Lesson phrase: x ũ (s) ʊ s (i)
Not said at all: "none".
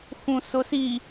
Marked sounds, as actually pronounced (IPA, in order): s, i

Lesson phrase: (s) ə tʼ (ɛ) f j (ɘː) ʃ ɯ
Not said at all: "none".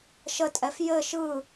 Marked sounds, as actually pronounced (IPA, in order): ʃ, ɛ, ɘ

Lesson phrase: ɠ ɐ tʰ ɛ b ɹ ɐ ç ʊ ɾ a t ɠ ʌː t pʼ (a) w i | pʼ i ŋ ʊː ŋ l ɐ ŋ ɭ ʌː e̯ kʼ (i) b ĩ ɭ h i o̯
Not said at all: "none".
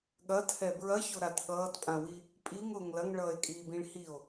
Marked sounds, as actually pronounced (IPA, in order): ã, iː

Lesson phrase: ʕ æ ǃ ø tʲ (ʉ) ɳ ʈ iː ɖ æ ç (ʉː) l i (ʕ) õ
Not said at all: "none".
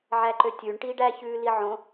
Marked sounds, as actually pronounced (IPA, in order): ʉ, ʉː, ʕ

